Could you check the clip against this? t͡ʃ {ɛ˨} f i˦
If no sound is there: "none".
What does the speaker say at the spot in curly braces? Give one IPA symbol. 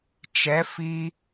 ɛ˨˦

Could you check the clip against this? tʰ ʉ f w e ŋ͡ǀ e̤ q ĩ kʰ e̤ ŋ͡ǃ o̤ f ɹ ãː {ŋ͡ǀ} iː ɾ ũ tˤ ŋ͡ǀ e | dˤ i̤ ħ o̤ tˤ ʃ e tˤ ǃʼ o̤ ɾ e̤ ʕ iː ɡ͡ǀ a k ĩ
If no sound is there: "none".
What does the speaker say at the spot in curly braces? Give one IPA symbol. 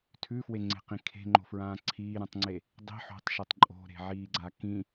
ǀʰ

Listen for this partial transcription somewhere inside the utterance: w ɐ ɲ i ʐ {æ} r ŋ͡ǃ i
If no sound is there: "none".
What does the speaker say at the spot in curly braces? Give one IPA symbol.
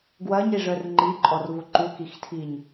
œ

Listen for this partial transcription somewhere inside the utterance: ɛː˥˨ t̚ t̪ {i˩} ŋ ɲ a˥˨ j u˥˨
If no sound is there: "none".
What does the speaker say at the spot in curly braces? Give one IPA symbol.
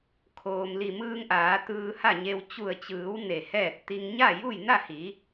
i˧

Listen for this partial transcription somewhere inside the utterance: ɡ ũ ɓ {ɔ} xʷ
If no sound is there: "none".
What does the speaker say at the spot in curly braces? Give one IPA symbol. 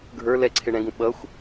ʌ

